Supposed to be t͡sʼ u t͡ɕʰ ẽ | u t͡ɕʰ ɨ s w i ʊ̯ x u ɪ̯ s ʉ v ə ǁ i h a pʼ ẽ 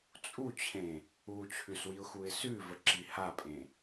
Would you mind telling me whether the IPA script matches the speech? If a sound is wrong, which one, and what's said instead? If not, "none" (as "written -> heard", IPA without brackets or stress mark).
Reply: ɨ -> ʉ